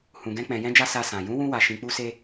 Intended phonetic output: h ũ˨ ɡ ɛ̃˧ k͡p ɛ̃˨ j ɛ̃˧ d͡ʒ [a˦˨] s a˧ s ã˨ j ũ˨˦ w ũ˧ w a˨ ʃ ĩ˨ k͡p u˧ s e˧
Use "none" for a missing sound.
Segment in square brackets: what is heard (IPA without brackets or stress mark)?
a˧